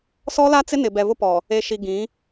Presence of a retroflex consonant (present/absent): absent